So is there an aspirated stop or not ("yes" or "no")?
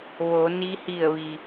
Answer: no